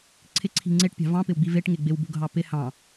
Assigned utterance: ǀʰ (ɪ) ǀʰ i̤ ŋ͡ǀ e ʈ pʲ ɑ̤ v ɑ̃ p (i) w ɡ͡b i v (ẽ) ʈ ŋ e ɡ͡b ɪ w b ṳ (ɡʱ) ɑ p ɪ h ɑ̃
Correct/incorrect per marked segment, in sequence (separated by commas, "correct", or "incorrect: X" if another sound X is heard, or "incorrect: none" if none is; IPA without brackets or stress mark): correct, incorrect: ɪ, incorrect: e, correct